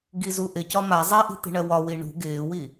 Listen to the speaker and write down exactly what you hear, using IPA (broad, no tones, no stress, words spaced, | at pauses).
ɡizuʔɪcɒ ma zˤɛʔi̤ t̪i̤ɳɜwɒwi ɳṳ ɡɪːwi